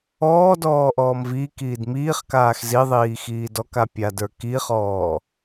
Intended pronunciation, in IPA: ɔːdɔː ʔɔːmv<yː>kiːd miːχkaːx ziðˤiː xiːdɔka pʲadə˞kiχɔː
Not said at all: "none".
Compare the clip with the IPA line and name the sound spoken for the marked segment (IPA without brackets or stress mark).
iː